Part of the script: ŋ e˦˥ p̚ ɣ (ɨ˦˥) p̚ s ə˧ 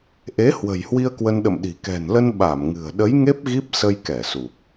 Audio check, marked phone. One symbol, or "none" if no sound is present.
i˦˥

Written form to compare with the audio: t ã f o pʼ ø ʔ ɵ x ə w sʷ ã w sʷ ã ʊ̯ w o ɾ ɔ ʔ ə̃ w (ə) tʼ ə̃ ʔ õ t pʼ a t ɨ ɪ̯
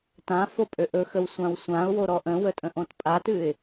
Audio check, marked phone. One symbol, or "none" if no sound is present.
ə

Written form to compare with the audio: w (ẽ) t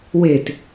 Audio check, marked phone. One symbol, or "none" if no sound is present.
e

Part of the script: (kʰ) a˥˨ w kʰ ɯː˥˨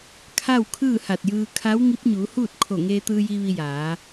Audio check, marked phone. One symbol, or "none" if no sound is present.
kʰ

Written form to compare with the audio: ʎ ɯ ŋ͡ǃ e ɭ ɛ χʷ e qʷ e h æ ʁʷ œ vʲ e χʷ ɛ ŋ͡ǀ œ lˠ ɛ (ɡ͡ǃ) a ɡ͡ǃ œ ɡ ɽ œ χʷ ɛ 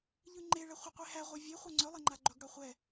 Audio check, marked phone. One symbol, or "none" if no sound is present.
ŋ͡ǃ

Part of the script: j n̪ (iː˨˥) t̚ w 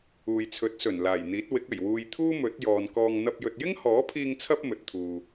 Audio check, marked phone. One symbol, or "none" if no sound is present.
iː˨˥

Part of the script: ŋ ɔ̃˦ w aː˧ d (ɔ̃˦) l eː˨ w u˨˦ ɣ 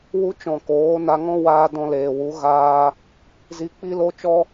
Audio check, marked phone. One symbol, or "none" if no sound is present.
ɔ̃˧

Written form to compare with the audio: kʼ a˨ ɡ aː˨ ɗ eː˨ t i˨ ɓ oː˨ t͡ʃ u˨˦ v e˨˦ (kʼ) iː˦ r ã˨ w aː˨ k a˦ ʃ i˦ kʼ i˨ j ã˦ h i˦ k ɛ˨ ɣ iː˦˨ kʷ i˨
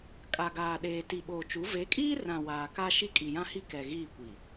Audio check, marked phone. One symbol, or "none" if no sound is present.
kʼ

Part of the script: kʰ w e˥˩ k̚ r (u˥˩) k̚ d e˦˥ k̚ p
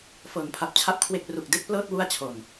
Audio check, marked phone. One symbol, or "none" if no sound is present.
u˨˩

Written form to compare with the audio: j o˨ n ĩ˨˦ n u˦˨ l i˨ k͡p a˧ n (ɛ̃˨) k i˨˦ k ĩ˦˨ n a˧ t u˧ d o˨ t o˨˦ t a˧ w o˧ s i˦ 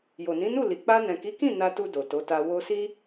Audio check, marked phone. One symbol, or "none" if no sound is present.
ɛ̃˨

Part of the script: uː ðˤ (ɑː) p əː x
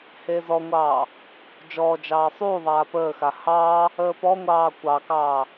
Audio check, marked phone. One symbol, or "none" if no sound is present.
aː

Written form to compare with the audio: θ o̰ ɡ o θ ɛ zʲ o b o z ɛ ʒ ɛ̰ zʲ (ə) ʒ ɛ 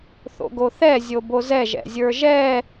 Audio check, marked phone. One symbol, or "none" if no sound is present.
ə˞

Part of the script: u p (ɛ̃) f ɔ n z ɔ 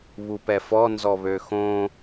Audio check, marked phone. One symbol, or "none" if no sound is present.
ɛ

